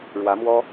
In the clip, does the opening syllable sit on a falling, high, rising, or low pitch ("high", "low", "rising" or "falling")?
rising